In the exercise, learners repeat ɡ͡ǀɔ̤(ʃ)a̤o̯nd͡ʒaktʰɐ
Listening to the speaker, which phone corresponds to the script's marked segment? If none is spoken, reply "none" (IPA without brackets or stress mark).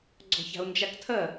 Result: ç